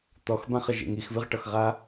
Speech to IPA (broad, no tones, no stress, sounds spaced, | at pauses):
t̪ ɔ x b ã χ ə ʒ ḛ ŋ i x v ɨ ʁ ʈ ʌ x ʁ a